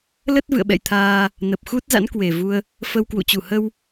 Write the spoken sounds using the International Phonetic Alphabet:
lə˦˥t̚ vɨ̰˧˨ə̯ɓɛ̰˧˨jt̪ʰaː˧ | nə˨˩p̚xu˦˥t̚ za̰˧˥nkwe˨˩vu˧ə̯ | fə˧wkwṵ˧˨ t͡ɕu˧˩hə˧w

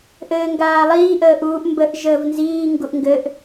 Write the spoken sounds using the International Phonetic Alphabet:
ʔɘːŋɡaːlˠiː ʔəːʔuːʔ mbəʔ ʒəːvnziː ŋɡuʔŋɡɘʔ

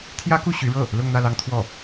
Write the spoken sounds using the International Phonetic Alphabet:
t̪ʰjä˥ku˥˩ ɕy˧˥ɻɤ˥˩ | lʊ˥˧ŋn̪ä˥˩lɑ˥ŋt̪ʰwɔ˥˩

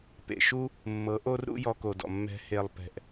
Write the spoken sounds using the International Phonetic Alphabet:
pḛ˨ʃu˦ | mːɤ˨˦ʔo˦rɾṵ˦ jɔ˧ko˨dɔ̰˨mːɛ̤˧ he˨lˠpɛ̤˨ʔ

